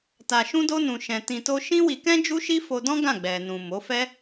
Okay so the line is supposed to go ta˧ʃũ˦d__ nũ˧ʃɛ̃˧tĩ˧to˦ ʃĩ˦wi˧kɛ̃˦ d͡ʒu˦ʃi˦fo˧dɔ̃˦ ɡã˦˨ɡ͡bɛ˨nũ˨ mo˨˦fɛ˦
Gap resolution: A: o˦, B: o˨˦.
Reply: A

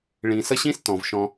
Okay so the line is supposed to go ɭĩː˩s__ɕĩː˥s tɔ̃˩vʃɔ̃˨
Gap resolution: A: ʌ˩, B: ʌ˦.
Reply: B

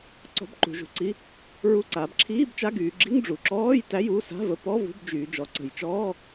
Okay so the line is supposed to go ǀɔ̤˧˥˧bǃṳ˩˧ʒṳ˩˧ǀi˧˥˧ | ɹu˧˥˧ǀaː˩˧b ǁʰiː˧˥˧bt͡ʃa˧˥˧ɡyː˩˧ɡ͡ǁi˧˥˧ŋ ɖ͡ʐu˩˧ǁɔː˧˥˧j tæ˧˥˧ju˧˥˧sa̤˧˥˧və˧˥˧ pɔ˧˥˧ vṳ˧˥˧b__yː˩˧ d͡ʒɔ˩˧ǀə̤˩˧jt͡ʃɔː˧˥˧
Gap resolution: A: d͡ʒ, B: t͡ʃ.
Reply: A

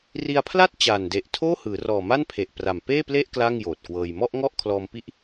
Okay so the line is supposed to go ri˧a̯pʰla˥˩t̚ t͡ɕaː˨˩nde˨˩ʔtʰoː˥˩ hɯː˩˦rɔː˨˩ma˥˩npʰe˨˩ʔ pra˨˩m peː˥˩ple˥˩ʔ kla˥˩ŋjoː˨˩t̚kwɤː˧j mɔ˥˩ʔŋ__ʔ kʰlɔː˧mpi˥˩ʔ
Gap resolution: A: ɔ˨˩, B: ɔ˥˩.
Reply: B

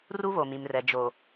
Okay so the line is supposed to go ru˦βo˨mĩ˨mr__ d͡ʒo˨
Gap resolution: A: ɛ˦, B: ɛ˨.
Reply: B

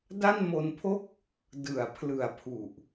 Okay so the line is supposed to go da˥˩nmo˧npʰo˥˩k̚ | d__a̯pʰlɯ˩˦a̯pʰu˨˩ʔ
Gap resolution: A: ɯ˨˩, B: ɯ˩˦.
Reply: B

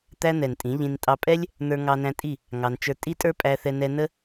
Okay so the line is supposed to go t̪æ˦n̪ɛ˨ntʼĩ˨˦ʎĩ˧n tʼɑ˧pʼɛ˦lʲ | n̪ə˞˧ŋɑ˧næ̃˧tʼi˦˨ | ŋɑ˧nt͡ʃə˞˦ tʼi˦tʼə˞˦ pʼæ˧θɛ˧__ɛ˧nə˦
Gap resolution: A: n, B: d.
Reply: A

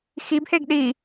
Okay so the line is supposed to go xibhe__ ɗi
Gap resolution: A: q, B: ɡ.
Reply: B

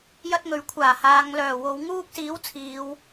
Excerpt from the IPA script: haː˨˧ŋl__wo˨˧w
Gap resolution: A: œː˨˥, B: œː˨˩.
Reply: B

